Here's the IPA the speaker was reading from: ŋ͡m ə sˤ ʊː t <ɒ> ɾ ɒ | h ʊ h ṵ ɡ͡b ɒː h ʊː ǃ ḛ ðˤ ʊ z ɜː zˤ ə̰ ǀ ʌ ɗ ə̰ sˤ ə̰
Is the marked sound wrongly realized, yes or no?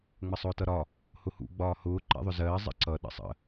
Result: yes